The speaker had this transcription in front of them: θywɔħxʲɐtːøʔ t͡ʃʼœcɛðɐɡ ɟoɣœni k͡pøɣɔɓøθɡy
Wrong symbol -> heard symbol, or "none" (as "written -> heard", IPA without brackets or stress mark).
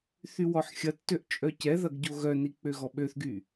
none